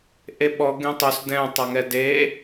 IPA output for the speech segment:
ʔeɓɔ ɡẽtˤos dɛ̃ tˤaŋɛde

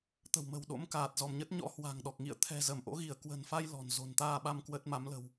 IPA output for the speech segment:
t̪ə̤˨˩wmə̤˨˩w ɗo̰˧˥mkaː˨˩t̚zɔ˧˩mɲə˦˥t̚ ɲɔ̰˧˥ hwa̤˨˩ŋɗɔ˨˩k̚ ŋḭ˧˨ə̯t̪ʰɛ̤˨˩ zə˧˩m ʔo̰˧˥ɣi˧˩ə̯ kwə̤˨˩nfa˧j lɔ̤˨˩nzo̤˨˩n t̪aː˧ɓa˧m kwə˦˥t̚ ma˨˦mlə̤˨˩w

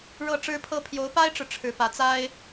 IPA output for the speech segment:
ɻɤ˥˩ʈ͡ʂɻ̩˥ pʰɤ˥ pʰjo˧˥ʊ̯pa˥ɪ̯ʈ͡ʂɻ̩˨ ʈ͡ʂʰɻ̩˧˥pä˧˥ t͡sa˥ɪ̯

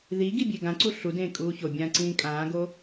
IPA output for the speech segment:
ði ɡibʲeɡãǀu ɬudẽː kʼuːçobʲãː ǀĩːkʼãːɡo

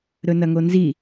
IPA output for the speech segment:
ɾɵnɐŋonzi

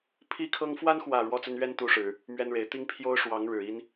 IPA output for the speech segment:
pʰi˦kʰɤ˦ŋ fwa˦nxwä˨˩ ɻwɔ˥˨t͡sə˦n ɥɛ˦n t̪u˦ʂɻ̩˨˦ | mɥɛ˦nɻe˨˦ɪ̯ t̪i˦ŋ pʰjo˦ʊ̯ʂwɑ˨˦ŋ ɻɻ̩˨˩ i˦n

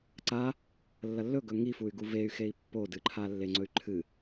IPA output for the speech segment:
ǀa | lːɐlːɵɡɵ ŋifuy̯ɡu vey̯ xei̯pːodɨǃʰa lːeŋ͡ǀɵy̯ǃʰɨ

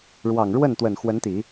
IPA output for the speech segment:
ɻwɑ˨˩ŋɻwə˥˩nt̪wə˨˩n xwə˧˥nt̪i˨˩˦

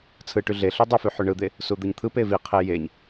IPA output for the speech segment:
t͡sʰɯʈy ɮeɬy dˤify ħyɳɯd̪e | sud̪ɯɲt̪ʰɯpe viqʰe jeɲ

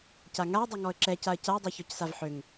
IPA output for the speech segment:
caŋaə̯dˤø ŋɔə̯ǁɛcaə̯ caə̯dˤø çɔcsavħøŋ

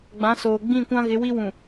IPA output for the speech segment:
ɡ͡bã˨˦soː˨ ɡ͡bĩ˦˨kʷã˦ ɣɪ˨˦wi˦wũ˨

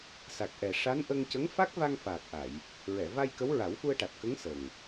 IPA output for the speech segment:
sa˨˩k̚ʔɛ˨˩ʂa˧˥nʔə˧ŋ cə˧˥ŋfa˦˥k̚va˧ŋ faː˨˩k̚ʔa˨˩˨j | ɹɛ˨˩˨va˧j kə˧˥wɹa˨˩˦wfu˧ə̯ʈa˨˩t̚ kə˧˥ŋ sə˨˩ŋ

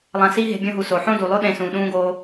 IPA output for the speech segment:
lˠã˧si˦ɦe̤˧ bʲõ˧ɦu˨ so˨ħõ˦du˨lˠo˦ ɗẽ˧sũ˨ ɗũː˧ɡoː˧

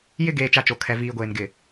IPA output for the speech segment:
jɪ˦ ɡeː˨t͡ʃa˨ t͡ʃo˨kʰɛ˨ viː˨ɡʷeː˨n ɡɪ˨

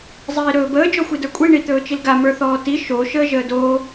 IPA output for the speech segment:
zˤiːɾɵːbəː d͡ʒɔxʷidə˞kʷʼi ɳit̪ɵːt͡ʃilɡa mə˞θɔːti ʃo ʃəːʒəːdoː

